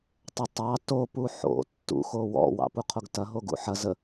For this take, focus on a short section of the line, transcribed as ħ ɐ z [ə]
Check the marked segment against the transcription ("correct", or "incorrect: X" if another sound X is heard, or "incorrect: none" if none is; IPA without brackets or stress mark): correct